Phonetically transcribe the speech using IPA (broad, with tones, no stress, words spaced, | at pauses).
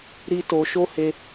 ɾi˦to˧ ʃo˦he˧